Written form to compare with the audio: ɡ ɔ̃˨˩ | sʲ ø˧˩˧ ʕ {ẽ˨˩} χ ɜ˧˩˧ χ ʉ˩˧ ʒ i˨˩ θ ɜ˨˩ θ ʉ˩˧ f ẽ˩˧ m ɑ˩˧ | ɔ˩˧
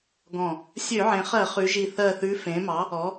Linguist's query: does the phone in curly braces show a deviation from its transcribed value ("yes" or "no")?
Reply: yes